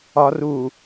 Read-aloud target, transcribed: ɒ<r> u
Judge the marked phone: correct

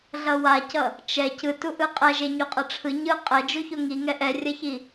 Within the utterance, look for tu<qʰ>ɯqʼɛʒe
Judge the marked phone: incorrect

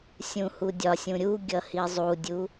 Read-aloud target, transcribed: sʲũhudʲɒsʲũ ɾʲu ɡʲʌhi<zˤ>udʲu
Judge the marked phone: correct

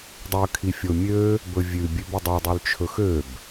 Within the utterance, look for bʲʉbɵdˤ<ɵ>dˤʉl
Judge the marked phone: incorrect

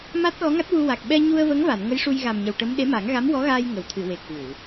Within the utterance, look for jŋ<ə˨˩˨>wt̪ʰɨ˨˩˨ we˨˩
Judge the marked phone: correct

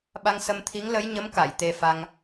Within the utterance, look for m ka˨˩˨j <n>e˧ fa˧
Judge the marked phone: incorrect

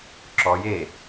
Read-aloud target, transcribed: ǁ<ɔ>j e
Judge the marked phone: correct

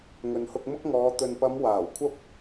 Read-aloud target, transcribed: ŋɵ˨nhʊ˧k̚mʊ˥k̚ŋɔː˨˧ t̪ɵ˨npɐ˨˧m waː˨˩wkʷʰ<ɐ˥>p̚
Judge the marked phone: correct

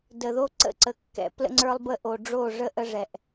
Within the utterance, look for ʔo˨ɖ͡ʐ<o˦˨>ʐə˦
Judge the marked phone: correct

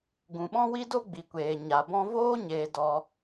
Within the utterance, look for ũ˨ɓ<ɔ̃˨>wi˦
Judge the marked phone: incorrect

